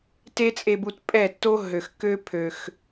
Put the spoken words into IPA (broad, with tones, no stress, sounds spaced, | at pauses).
t e˦ t͡sʼ e˧ b u˧ t pʼ ɛ˦˨ tː o˦ ɦ ø˨ x k ø˦ pʰ ø˨ x